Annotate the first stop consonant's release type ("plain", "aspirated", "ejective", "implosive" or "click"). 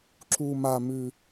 click